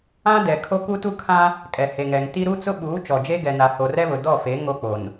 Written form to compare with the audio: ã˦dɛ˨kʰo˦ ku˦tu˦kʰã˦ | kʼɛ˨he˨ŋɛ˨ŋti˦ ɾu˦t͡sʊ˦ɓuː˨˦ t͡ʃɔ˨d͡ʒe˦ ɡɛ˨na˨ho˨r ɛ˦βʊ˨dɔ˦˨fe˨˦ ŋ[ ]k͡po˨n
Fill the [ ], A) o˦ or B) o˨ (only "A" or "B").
A